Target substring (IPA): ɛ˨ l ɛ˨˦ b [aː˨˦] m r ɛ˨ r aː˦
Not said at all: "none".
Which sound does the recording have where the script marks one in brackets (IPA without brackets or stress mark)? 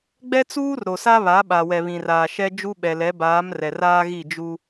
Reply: aː˨˦